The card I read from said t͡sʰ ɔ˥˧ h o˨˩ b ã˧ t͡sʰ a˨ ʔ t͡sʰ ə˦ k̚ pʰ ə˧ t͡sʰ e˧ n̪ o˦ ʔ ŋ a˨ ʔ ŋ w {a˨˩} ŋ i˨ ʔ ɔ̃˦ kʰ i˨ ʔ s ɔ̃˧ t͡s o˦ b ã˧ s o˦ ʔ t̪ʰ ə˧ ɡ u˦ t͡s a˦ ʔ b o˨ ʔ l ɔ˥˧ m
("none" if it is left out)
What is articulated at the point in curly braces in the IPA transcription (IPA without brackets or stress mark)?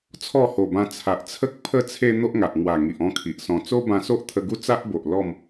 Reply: a˨˩